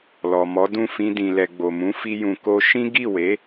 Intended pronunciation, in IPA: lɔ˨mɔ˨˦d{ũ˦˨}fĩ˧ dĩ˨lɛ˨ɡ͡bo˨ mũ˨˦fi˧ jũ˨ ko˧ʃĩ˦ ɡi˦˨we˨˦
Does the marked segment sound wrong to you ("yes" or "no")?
no